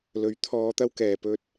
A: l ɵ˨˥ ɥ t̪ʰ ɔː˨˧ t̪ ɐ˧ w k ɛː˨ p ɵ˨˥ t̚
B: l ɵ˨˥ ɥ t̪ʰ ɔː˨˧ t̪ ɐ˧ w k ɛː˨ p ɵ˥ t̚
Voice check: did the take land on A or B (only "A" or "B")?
B